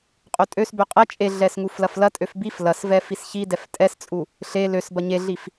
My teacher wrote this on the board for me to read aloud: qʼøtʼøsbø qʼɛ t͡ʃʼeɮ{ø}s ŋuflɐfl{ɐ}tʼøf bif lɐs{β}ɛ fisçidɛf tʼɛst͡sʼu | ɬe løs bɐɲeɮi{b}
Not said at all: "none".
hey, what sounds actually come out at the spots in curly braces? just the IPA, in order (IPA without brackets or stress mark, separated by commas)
ɛ, ɐ, v, f